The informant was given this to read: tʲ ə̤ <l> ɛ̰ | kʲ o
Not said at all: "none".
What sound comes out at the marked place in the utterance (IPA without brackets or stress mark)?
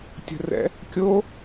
r